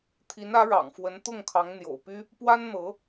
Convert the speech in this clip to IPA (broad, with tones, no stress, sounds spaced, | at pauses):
t̪ʰ i˧˥ n ä˧˥ ɻ ɑ̰˨˩ ŋ f w ə˧˥ n t̪ ʊ˥˩ ŋ kʰ ɑ˧˥ ŋ n̪ j o̰˨˩ ʊ̯ p y˥ | p w a˥ n n̪ ɤ˧˥